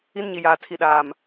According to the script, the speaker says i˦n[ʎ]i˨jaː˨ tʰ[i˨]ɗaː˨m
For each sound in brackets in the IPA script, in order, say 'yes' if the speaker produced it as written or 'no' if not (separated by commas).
no, yes